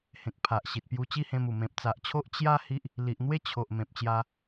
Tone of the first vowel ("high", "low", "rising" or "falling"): low